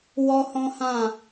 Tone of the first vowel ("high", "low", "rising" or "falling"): high